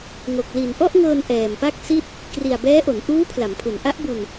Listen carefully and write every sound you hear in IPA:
ŋo˨˩k̚ li˨˩nʔɔ˥˩ʔŋɤː˧n ʔɛː˨˩mpa˥˩k̚ si˥˩t̚ | kri˨˩a̯bɛː˦˥ʔo˩˦n ʔuː˦˥ pʰla˩˦mpʰu˩˦n ʔa˦˥ʔbu˧n

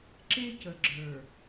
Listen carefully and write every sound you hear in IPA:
ǁe˦cə˨ɡ͡ǁə˞˨

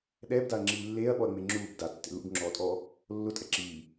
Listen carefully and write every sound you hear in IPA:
ɗɛːbdaɐ̯ŋ͡ǁiː lːeːɐ̯ɓɔɐ̯ŋ͡me ŋ͡ǁuːb datːḛ lṵbŋ͡ǁɔːtʼɔː | lːʊtʼɛ ǁiː

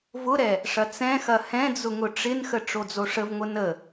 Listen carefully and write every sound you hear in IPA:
vʊɾɛ | ʂɐt͡sɛ̃xɐ hɛ̃d͡zʊ ŋʊʈ͡ʂɪnxə ʈ͡ʂod͡zoʂəvŋʷɘ nə

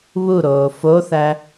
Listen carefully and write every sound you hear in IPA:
βuɾoː foθæ

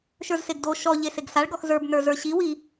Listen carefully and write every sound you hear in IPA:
ʃə˞zseɡdo ʃɔʎe seɡsaɭɡɔx zə˞bnə˞ zə˞ɕiwi

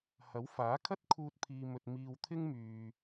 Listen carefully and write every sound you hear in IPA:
hɐ˨˥wfaː˨˥kʰɐ˥t̚ kʰuː˧t̚pʰiː˨mɵ˨t̚ miː˨wt̪ʰɪ˥ŋmyː˨

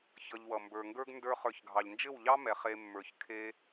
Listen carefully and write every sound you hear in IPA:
çʌ˧ʎwʌ˨ mbə˞˨ŋɡə˞˦ɡ ndə˞˦ χə˞˧çɡʱɑ˨ʎ nd͡ʒɘ˦˨wʎɑ˦ mɛ˨χe˧ mːə˞˨çkʰe˦

